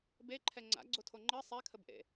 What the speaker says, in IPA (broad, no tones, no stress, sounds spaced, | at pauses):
b e ǃʰ ɛ ŋ͡ǀ a̰ ɡ͡ǀ o tʰ o ŋ͡ǃ ɜ sˤ ɛ kʰ ə b ʔ ḛ